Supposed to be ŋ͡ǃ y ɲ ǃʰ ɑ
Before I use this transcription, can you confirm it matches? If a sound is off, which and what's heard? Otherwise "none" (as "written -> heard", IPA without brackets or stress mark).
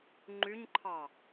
none